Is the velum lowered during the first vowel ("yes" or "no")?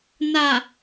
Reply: no